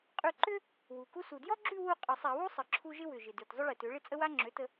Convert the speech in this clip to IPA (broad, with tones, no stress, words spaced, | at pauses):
qʼʉ˥˧ ǃʏ˥ | wu˨˩ku˥ su˨˩djɔ˥ɡ͡ǁʉ˥˧ wu˥˧ qʼə˧˩˧sˤa˧˩˧wu˥ sˤə˧ǁʰu˥ ʒɪ˥wʏ˨˩ʒɪ˨˩dʉ˨˩t zˤʏ˥ɭɪ˧˩˧tø˩˥ɭɪ˥ t͡sʼə˥wa˥ ŋ͡ǁø˩˥tə˧